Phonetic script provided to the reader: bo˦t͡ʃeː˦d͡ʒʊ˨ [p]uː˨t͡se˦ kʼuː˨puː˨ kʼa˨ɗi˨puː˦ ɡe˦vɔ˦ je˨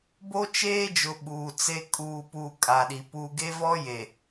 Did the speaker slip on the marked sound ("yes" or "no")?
yes